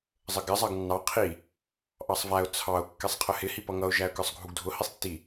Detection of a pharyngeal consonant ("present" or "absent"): absent